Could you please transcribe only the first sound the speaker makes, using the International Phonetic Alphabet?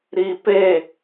ɾ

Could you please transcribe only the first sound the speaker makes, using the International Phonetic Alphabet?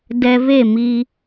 d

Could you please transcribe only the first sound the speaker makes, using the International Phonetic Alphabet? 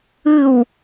ɯ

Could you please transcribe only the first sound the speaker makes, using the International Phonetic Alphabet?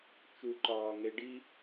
t͡ʃ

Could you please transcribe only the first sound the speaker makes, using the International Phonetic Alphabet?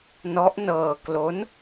n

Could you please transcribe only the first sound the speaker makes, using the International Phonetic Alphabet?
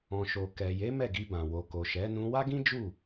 ɔ̃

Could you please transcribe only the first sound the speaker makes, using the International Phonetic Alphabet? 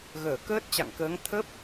ɣ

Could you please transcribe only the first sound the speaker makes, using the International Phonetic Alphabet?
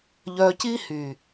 ʎ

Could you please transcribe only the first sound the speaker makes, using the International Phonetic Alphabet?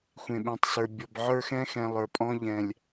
xʷ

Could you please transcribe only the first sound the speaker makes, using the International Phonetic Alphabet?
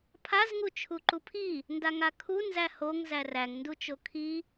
pʰ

